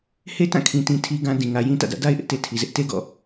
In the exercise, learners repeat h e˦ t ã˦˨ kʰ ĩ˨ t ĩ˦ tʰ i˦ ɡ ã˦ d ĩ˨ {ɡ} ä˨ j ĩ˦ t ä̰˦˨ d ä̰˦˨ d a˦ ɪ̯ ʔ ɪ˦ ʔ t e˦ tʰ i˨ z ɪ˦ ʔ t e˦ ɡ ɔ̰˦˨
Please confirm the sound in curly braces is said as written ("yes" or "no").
no